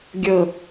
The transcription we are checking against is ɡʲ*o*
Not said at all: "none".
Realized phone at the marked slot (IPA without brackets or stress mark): ɤ